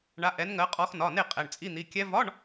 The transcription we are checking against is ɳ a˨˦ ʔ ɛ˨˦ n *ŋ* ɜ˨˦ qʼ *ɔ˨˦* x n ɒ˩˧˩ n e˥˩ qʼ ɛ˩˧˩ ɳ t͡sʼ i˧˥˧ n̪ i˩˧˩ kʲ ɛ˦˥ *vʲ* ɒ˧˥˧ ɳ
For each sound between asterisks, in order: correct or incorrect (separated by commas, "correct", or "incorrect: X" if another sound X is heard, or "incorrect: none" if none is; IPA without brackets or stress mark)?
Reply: correct, correct, incorrect: v